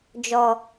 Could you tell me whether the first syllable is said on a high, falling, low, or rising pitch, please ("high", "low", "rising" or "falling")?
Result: low